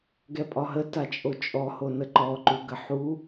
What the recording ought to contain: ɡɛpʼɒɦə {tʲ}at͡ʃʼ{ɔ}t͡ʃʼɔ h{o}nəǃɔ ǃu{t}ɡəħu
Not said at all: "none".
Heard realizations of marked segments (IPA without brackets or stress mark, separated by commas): t, o, o, none